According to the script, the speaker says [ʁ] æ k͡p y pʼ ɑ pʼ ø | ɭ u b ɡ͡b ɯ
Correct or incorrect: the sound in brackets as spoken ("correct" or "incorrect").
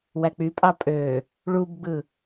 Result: incorrect